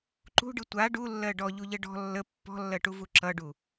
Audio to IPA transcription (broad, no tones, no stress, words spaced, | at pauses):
ǃṳɖɯ tʷa ɖulːɜ ɖɔʎuʎə ɖɔ̤ lːə pːɔ̤lːɜʈuvu ǁʌɖu